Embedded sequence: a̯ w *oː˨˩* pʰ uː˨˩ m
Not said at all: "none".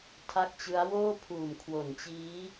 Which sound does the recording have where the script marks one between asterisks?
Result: oː˥˩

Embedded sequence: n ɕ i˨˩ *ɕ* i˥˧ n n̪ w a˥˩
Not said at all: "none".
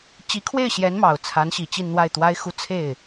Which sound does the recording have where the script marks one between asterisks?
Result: t͡ɕ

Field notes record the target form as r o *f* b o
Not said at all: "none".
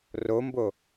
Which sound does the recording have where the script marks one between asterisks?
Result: m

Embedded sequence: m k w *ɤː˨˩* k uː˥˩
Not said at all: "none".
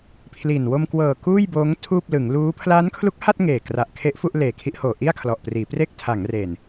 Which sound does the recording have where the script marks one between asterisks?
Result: ɤː˨˩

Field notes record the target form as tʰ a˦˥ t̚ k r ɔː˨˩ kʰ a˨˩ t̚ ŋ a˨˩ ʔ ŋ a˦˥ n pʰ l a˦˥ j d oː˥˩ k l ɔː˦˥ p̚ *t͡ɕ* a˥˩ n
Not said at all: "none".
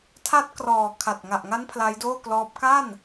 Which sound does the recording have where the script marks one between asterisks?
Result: k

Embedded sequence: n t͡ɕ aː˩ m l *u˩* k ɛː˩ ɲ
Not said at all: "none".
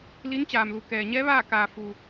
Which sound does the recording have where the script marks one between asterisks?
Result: u˩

